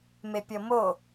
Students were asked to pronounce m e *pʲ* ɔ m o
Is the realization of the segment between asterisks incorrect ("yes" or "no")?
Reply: no